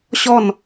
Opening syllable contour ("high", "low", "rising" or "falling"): falling